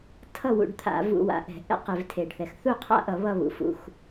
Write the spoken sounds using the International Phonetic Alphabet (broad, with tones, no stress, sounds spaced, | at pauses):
tʰ ʌ˥˨ w ṵ˧˩˧ ɖ t̪ʰ a̰˧˩˧ v ṵ˧˩˧ w a̰˨˩ ʔ ɛ̤˧˩˧ ʔ ɛ̰˥˨ q e˧˩˧ v tʰ e˨˩ ɖ θ ɛ˨˩ x θ u˥˨ qʰ a̰˥˨ ʔ ʌ˧˩˧ β ʌ˥˨ β ṵ˨˩ f ṵ˨˩ x